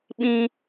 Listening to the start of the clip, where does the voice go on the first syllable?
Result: high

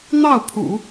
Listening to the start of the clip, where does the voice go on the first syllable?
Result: falling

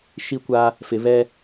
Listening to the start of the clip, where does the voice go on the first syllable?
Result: high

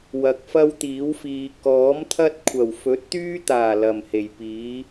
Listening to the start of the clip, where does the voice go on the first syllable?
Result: low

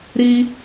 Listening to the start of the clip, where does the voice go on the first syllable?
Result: high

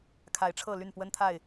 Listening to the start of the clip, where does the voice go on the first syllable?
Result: rising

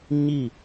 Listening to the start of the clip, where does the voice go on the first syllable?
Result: falling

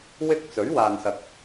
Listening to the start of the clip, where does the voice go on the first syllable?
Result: high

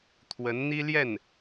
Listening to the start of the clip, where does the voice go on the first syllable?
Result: rising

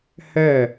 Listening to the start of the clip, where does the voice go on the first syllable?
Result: falling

